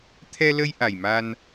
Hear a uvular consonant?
no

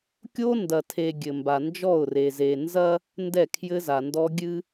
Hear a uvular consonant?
no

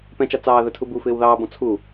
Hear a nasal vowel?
yes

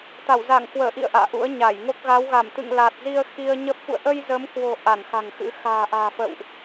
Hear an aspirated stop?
no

